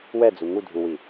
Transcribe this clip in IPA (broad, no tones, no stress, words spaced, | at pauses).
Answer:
wɛd͡zu ŋudʱuwi